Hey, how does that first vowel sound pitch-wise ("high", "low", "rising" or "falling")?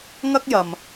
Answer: high